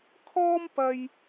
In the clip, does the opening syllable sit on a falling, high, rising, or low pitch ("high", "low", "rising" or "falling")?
high